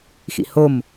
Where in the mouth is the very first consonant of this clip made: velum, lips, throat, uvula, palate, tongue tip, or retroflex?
velum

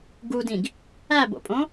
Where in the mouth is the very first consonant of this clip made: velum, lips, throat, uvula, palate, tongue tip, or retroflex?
velum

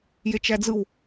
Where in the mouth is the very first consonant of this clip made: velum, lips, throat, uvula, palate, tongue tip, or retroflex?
palate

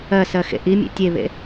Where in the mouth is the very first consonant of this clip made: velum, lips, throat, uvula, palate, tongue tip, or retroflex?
tongue tip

